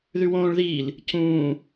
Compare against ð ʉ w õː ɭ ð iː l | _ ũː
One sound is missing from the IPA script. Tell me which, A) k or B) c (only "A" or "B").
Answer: B